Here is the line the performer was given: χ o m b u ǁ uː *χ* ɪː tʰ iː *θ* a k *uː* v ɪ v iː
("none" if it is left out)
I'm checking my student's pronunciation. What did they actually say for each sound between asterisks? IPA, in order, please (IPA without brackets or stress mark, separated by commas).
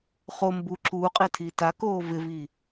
qʼ, t, oː